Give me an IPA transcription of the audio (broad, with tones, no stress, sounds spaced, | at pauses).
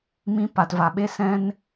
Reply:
m ĩ˧ p a˨ t v a˨ ɓ e˧ s ɛ̃˧ n